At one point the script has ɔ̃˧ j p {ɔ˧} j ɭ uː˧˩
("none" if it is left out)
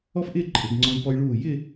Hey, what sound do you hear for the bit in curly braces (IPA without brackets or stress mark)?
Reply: ɔ˧